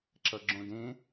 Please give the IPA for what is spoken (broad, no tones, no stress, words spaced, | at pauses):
ǁʌɡ͡ǁõdẽ